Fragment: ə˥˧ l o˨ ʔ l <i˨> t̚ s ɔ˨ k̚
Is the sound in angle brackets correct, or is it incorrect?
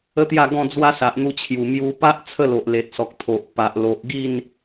incorrect